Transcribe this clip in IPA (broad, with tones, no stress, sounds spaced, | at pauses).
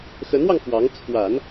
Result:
x ə˧˥ n w ɑ˧ ŋ f w ɑ˧˥ ŋ t͡sʰ w a˨˩˦ n